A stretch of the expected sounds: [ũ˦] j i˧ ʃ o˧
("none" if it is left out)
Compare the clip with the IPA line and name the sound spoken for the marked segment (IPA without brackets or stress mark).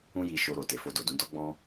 ũ˦